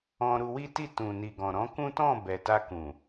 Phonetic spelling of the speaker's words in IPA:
ɔ̃˧ ɾ u˧ w i˦ t i˦˨ t ũ˨ n i˨ ɡ ɔ̃˨ ɾ ɔ̃˨˦ k ũ˦ t ɔ̃˦˨ b ɛ˨ t a˧ k ũ˨

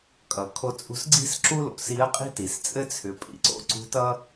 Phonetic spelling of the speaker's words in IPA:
kʼ ʌ˩ kʰ o˧ t͡sʼ ṳ˧ s ɡ͡ǀ i̤˥ s ǁ u˥ l o̰˩ s i˧˥ ɐ̯ qʼ i̤˥ t i˩ s t͡sʼ ɘ˥ t͡sʰ ʏ˩˧ pʼ ḭ˧˥ ǀ o̰˧˥ ǀ ṳ˧˥ t ʌ˥

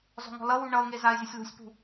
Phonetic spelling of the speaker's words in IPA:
z ɔ̤ ŋ ɔ̤ l ʌ w u ɳ ʌ ʊ̯ ŋ e z a ɪ̯ zʲ ʌ sʲ l ṳ sʲ p ṳ

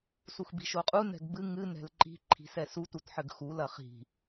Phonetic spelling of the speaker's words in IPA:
s u x b i̤ ʃ o qʼ u n ɛ̤ ɡ b ɨ ŋ ɨ n ɛ̤ l ǃ i̤ ǃʰ i̤ s ɛ s u t u t ħ ɘ ɡ x u l ɐ χ i̤

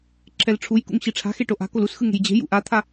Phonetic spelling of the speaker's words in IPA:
ǁʰ ɛ l ʈ͡ʂʰ u j k ṵ ŋ ɕ i ʈ͡ʂʰ a̤ x e ʈ o ʔ a̤ k o l u s x ɯ ŋ e̤ j d͡ʑ e̤ j ṵ ʔ a t̪ʰ a

